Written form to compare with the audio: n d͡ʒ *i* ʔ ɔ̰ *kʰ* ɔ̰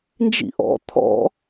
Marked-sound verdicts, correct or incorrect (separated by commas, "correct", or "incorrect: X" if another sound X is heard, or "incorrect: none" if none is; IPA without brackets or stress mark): incorrect: ḭ, incorrect: t̪ʰ